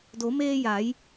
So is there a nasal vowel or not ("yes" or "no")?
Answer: no